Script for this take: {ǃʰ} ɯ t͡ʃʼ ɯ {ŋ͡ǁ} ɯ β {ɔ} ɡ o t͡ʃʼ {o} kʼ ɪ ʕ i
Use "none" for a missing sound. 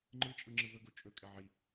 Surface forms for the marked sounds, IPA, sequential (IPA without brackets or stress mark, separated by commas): ŋ͡ǃ, ŋ͡ǁ, ɵ, ɵ